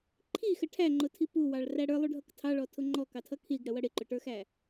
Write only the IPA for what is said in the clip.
ǃʰ i x ə ʈʰ æ ŋ͡ǃ ʊ tʰ i p u w ɑ ɭ r æ ɽ ə˞ lˠ u ɖʱ ʌ k tʰ ɑ ɭ ɔ tʰ ʊ ŋ͡ǃ ɔ k ɑ tʰ ʌ kʰ i ɡ ɽ ə w ʌ ɽ ɪ ǃ ʊ ʈ ə˞ x æ

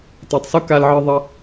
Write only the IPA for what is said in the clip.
t a˧ tˤ s o˦ k a˦ l ʕ ɨ˦ ðˤ ɐ˦

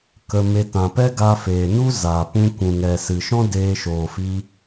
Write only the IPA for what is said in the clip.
k ə˧ m e˧ t ã˨ p ɛ˦ ɡ a˧ f eː˨ n u˦ z aː˨ p ũ˧ kʷ ũ˨ ŋ ɛ˨ s ɨ˨ ʃ ɔ̃˦ d eː˧ ʃ oː˨ f i˧

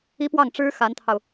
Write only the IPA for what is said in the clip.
i˥ p w ɑ˥˩ ŋ ʈ͡ʂ ɻ̩˥ x a˧˥ n t̪ʰ ɑ˧ ʊ̯

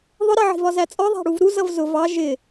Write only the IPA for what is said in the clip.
ðˤ ʊ ɾ ɜ ʕ i̤ v ɒ z æ t͡sʼ ɔ ðˤ æ̤ ɽ u v ɾ u z ʌ v z ʊ v ɑ ʒ ɪ

